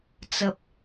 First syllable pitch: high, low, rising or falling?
low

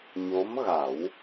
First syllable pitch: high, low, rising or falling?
rising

